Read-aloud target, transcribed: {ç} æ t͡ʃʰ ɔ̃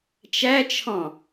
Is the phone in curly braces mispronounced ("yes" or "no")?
yes